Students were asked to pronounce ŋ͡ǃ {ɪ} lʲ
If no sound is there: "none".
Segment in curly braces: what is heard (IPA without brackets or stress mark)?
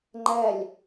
ɛ